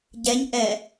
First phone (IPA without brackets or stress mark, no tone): ɟ